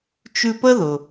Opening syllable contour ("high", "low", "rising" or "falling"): high